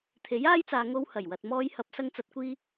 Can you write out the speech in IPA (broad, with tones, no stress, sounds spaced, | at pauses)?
t̪ʰ e˨˥ j aː˥ j t͡s aː˨ ŋ o˧ w h ɐ˨˩ j w ɐ˨ t̚ m ɔː˧ j h ɐ˨˥ p̚ s ɐ˧ ŋ t͡s ɐ˨ t̚ kʷ iː˧